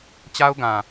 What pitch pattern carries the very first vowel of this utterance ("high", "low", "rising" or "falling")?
high